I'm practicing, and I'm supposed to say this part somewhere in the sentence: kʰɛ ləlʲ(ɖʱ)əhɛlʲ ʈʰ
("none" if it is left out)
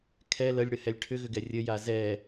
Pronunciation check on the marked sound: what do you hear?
ɽ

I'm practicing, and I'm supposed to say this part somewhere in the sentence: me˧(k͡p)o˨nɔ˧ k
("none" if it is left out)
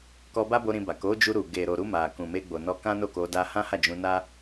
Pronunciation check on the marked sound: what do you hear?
ɡ͡b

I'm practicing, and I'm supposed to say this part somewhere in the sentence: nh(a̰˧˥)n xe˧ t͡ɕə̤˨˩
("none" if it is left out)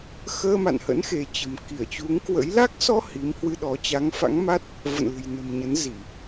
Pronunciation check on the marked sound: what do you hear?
ə̰˧˥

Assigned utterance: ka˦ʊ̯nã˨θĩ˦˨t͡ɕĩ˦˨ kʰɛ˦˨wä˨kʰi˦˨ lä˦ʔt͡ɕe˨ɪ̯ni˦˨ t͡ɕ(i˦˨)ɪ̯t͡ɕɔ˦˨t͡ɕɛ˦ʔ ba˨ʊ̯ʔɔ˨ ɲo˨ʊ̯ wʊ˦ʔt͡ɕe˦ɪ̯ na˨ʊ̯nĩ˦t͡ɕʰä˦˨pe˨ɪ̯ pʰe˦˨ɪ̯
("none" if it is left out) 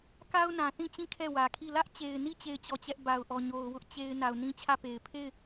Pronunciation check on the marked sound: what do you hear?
e˦˨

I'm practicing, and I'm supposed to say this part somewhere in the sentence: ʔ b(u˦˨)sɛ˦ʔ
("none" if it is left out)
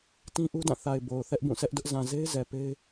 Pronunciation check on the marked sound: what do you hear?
ũ˦˨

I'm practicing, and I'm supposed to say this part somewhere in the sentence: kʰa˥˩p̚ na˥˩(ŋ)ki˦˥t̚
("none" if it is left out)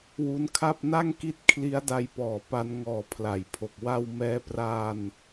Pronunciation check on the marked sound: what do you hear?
ŋ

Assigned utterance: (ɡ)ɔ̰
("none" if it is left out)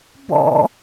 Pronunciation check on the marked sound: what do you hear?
b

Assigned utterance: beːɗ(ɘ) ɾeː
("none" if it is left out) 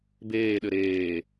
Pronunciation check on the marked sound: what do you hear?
ɘ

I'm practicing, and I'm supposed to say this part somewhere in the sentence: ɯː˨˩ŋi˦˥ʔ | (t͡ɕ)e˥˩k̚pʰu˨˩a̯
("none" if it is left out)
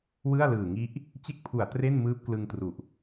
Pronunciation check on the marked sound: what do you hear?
t͡ɕ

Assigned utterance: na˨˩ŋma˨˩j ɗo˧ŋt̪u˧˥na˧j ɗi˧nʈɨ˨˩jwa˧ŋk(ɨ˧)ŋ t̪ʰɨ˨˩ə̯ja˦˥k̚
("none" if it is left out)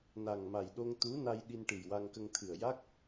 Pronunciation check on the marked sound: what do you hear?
ə˧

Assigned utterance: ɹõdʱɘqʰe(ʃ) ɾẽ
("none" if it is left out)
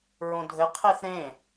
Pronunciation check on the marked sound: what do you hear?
θ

